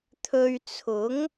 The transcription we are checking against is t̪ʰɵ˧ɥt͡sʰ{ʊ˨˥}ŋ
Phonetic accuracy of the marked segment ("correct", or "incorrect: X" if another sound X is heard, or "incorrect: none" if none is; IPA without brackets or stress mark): correct